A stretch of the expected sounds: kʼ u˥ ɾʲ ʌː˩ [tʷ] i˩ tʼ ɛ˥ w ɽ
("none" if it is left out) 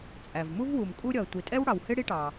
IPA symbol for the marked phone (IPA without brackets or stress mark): tʷ